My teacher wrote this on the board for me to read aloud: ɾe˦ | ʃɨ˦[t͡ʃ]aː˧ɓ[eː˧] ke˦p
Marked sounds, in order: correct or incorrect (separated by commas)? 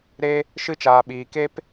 correct, incorrect